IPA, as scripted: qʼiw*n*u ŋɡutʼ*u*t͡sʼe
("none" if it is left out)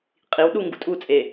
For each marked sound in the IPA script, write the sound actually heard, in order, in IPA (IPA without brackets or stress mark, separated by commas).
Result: ɗ, u